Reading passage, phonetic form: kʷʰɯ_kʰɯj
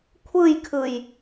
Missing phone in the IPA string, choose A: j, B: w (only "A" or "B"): A